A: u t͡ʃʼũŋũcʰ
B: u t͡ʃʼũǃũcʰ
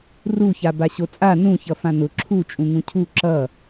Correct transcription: A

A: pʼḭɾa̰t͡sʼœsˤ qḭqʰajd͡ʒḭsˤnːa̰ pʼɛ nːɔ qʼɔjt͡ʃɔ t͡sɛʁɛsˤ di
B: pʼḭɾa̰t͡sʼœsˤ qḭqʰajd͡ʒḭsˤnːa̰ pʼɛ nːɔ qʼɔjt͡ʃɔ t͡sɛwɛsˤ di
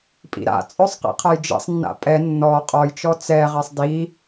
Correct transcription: A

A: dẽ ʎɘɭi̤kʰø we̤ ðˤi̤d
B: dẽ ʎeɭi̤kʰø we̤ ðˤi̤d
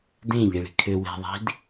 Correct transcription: B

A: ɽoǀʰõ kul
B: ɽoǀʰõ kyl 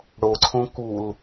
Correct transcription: A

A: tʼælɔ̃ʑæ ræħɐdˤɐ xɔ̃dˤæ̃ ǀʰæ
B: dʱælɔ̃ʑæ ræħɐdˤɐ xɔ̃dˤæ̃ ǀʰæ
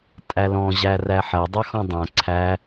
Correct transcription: A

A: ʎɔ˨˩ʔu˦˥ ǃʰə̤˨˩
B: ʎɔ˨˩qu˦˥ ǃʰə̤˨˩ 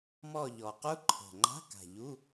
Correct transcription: B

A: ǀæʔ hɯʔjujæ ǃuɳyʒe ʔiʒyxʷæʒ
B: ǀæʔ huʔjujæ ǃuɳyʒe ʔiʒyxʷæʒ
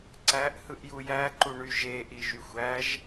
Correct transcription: A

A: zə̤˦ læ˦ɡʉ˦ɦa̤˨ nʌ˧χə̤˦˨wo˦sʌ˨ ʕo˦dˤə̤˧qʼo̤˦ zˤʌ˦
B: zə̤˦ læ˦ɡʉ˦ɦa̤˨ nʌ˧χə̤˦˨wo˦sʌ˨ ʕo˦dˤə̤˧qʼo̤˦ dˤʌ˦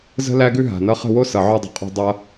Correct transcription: B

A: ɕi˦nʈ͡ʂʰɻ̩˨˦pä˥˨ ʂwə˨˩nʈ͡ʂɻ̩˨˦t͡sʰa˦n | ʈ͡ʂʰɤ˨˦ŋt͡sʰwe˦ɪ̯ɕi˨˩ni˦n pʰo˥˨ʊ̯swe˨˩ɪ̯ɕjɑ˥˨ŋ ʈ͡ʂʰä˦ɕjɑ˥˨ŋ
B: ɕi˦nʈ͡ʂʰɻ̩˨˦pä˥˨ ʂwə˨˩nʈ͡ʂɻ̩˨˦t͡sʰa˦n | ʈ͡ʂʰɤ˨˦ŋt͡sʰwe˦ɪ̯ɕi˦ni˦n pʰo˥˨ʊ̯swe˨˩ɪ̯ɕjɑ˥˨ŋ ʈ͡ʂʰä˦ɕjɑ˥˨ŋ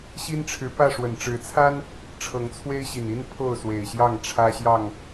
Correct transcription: A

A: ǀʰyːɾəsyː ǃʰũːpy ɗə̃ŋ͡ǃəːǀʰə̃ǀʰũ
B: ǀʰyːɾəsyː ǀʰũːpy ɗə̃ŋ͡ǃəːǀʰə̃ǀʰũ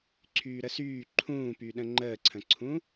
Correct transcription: A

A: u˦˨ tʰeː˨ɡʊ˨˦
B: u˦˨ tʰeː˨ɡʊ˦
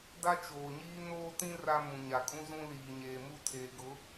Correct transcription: A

